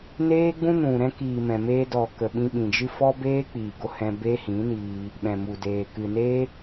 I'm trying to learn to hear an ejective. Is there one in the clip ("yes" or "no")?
no